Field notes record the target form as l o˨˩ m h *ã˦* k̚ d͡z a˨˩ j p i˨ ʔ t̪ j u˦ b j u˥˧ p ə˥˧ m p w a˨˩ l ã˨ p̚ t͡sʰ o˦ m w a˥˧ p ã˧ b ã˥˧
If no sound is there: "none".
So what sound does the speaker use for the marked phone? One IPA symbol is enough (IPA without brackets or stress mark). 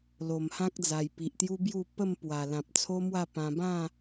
ã˦